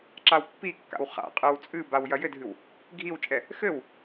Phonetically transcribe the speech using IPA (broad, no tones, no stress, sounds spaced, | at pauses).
ǁ a w pː i kː a̰ w χ a̰ qʼ ɨ w t͡sʼ ɨ b a w j ɐ j ɘ dʱ ɨ w | ɡʱ i w t͡ʃʼ ɛ | x ɘ w